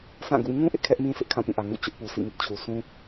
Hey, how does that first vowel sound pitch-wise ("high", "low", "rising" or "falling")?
falling